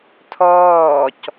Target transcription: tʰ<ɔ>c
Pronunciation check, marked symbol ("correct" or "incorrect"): incorrect